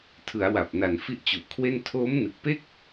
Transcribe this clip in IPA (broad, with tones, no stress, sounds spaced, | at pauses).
tʰ ɯ˩˦ a̯ w a˨˩ p̚ n a˨˩ n f i˦˥ ʔ t͡ɕ u˨˩ ʔ kʰ w e˥˩ n tʰ oː˦˥ m n ɯ˨˩ k̚ p e˥˩ k̚